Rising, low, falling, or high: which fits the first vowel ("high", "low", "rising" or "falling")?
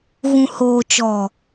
low